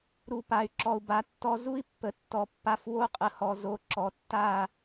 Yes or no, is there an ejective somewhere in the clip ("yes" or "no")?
yes